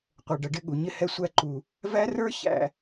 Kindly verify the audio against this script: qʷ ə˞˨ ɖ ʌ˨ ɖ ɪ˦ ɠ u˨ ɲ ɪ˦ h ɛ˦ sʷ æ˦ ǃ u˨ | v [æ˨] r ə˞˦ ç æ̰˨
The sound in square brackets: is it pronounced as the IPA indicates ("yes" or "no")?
no